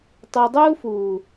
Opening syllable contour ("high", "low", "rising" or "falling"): low